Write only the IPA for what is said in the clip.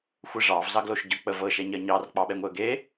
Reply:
xʷ ɘ ʐ ɑ v z ɑ ɡ l o ʃ ɟ ɤ k͡p ə v ɤ ʃ ɛ ɲ ɜ ɲ ɑ r k͡p ɑ ɓ ɛ ŋʷ e ə̯ ɡ e

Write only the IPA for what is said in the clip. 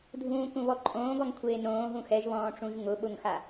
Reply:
dʱ ũː k ũ β ɔ ǃʼ õː ɡ ɔ ŋ kʷʰ eː n õː ɦ ũ x ɛ ʒ β ɔ̃ː ʈ͡ʂ ũ ʒ ŋ ʊ ɓ ʊ ŋ x a

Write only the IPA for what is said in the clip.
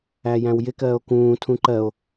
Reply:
æ j æ̃ w j ɪ k ɜː o̯ k ũː tʰ ũ ǃ ɜ o̯

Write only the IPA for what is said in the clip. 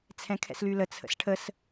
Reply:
t͡sʰ ɛ̃ kʰ ɛ̰ s l y l ə t͡sʰ ə̰ s ʈʰ ə s

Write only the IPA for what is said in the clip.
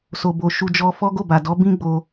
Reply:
s o˨ b o˨ ʃ u˧ d͡ʒ ɔ˧ f ɔ˦ ɡ o˦˨ b a˨ d ɔ˨˦ b ĩ˦ ɡ͡b o˧

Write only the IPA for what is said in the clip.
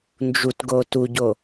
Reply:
n d͡ʒ u t ɡ o t u ɟ o

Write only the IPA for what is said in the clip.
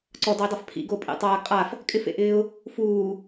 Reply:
ǀ ɔ d ɔ ɪ̯ dˤ a f pʰ ḭ ɡ o pʼ ḛ tˤ aː ɡ qʼ a f | kʼ ɪ f ḛ ʔ ɪː ʊ̯ | f uː

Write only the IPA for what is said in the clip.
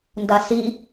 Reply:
n d a s i

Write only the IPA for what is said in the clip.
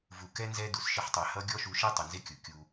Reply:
v u˨ k ɛ˦ n z ɛ˦ d u˨ s ʃ ɪ˦ ħ tˤ ɛ˨ h ʌ˦ ɡʲ ɔ˦ ʃ u˨˦ ʃ ɛ˦ tˤ ɪ˨ n z ɪ˦ kʲ ʊ˨ kʲ u˦

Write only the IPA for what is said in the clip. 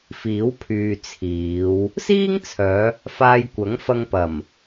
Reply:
f iː˨˥ w pʰ yː˨ t͡sʰ iː˨˧ w | s iː˥ ŋ t͡sʰ œː˨˧ | f aː˧ j kʷ ɐ˨˥ ŋ f ɐ˧ ŋ p ɐ˨˩ m

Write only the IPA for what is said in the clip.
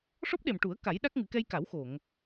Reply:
ʂ ɔ˦˥ p̚ ɗ e˨˩ m ʈ u˨˩˦ ə̯ k a˨˩˦ j ɗ a˦˥ k̚ ŋ ɨ˨˩˦ k ɛ˧ j k a˨˩˦ w x o˨˩˨ ŋ

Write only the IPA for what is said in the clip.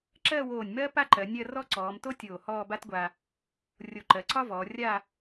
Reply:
ǁ ɜ˥˧ w oː˧˩ nʲ m ɜ˥ p a˥ ǃ ɜ˩˧ nʲ ɜ˥˧ r ɔ˥˧ ǀ ɔː˩˧ m t o˥ tʲ oː˧˩ h ɔː˥˧ b a˥ t ɡʷ a˧ | rʲ o˧˩ ǃ ɜ˩˧ ǀ ɒ˥ v ɔː˩˧ rʲ a˥˧

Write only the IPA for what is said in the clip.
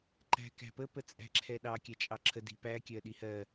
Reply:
ǃ æ̤ k æ̤ p ə p ə t͡sʼ æ̤ ǁʰ ɛ ɗ ɑ kʲ æ t͡ʃʼ ɑ ǁʰ ə d i̤ p æ kʲ ɜ ɗ i h ɜ

